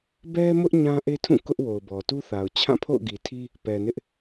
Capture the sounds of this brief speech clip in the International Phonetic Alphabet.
b ɛ˦ m ʊ˦ ʔ ɲ ã˦ ʔ e˦ tʰ ũ˦˨ k ʊ˦ ʔ w o˨ ʊ̯ b ɔ˨ t u˦ θ a˨ ʊ̯ t͡ɕʰ ã˦˨ pʰ o̰˦˨ ʊ̯ ɡ i˨ tʰ i˦ | p ɛ˨ n ɪ˦ ʔ

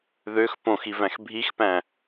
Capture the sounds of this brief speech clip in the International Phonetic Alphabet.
ð ø x p õ x i v æ̃ x bʱ i x p æ̃

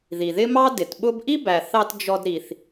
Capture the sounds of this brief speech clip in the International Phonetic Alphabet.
ð i˩ ð ɪ˥ m ɑ˥ d ɪ˩ t ɓ ʊ˥ b ʔ i˥ b æ˩ θ ɑ˧ t d͡ʒ ɔ˧ d ɾ i˩ θ

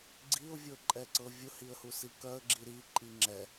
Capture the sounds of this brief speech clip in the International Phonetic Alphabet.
ɡ͡ǀ i ʊ̯ vʲ ɤ ǃʼ ɛ ǀ ɤ vʲ ʊ h i ə̯ h u s i k œ ə̯ ɡ͡ǁ i ɾ i ǃʼ i ŋ͡ǁ ɛ

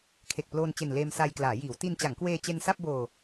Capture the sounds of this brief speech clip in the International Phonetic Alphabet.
kʰ e˨˩ k̚ p l oː˧ n t͡ɕ e˨˩ n l eː˧ m s a˧ j k l aː˩˦ j iː˩˦ w t i˧ n t͡ɕ a˩˦ ŋ k w eː˧ t͡ɕ e˧ n s a˥˩ p̚ b oː˧

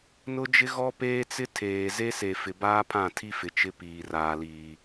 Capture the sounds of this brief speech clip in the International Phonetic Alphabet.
n ʊ˦ d͡ʒ ɪ˦ ɣ ɔ˦ p eː˦ t͡s ɪ˦ tʰ eː˨ z e˦ s e˨ f ɪ˨ b aː˦ pʰ ã˦˨ tʰ i˦ f ɪ˨ t͡ʃ ɪ˦ p iː˨ r aː˨ l iː˨

